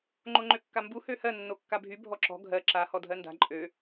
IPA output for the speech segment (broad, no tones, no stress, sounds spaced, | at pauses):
ŋ͡ǃ o ŋ͡ǃ ø kː a m b u h ø h ɜ nː o kː a bʱ y bʱ ɔ ǁ ɔ̤ ɡʱ ɜ ǁ a h ɔ dʱ ɜ n d a̤ ǃʼ ø